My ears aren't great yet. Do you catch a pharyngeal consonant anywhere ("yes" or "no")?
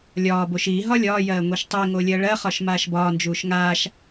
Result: no